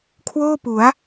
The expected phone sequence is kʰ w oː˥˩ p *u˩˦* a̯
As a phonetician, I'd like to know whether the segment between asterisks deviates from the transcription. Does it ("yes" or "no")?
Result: no